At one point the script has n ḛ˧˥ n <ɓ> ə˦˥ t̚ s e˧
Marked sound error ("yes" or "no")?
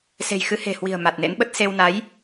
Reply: no